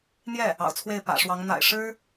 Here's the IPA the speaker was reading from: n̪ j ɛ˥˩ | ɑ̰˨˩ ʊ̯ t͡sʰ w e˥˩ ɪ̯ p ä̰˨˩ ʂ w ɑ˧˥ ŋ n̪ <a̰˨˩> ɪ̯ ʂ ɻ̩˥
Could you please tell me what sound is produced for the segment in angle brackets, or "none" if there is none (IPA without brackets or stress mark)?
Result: a̰˨˩